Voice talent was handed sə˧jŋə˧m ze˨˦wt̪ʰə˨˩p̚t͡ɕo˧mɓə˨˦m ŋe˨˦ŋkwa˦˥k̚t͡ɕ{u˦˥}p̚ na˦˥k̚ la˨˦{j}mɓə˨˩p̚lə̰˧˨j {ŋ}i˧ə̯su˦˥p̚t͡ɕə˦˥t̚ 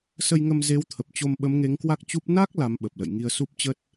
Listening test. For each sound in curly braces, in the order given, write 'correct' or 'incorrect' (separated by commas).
correct, incorrect, correct